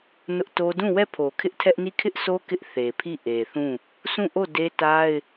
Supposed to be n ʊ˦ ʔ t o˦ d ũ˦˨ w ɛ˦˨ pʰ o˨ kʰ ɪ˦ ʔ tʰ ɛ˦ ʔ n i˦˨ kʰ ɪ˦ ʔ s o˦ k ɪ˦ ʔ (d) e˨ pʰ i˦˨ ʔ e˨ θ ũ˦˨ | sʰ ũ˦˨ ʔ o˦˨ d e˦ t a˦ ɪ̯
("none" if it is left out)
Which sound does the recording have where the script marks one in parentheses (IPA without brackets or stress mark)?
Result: θ